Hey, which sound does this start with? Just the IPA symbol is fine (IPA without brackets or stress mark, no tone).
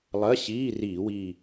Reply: lˠ